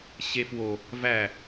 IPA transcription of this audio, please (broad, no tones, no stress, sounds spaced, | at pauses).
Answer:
ɕ e f w o | v æ